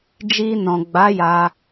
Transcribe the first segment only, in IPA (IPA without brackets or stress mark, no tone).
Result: d͡ʒ